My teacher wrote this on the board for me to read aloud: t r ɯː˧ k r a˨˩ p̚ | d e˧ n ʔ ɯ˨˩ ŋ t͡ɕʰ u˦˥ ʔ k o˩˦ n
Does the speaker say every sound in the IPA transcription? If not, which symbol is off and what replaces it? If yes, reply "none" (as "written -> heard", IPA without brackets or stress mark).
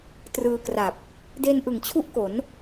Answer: none